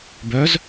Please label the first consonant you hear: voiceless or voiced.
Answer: voiced